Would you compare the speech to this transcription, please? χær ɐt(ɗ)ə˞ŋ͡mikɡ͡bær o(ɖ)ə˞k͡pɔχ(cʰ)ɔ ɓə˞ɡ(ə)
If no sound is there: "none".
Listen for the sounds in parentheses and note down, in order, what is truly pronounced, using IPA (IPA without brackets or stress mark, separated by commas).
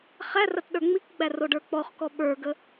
ɗ, ɖ, k, ə